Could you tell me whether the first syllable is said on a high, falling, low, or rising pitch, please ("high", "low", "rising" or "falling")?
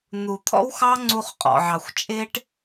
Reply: low